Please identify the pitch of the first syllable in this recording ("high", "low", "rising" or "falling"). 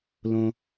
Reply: low